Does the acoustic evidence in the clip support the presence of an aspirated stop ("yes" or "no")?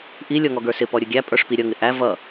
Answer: no